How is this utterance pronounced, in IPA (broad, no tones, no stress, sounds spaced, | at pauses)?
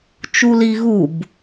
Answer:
t͡ʃ u l i ɣ u b